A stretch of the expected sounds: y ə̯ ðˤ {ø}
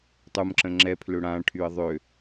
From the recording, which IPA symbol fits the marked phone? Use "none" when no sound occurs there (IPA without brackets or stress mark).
ø